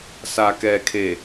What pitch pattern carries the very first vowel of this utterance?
low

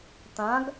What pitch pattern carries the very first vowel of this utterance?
rising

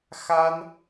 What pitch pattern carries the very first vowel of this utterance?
high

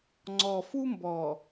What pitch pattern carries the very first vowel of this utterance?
low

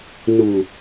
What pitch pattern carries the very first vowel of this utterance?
low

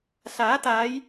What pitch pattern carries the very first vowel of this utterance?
rising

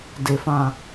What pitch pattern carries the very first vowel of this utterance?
low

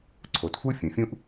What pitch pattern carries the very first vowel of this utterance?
low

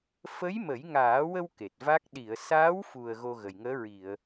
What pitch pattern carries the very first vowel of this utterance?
rising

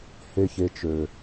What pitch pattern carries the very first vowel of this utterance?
low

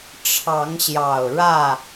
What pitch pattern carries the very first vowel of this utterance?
rising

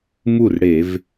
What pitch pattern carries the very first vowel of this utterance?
falling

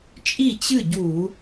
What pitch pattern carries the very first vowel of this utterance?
falling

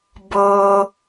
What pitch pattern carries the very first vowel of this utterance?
low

